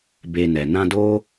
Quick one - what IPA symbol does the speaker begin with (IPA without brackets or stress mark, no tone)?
b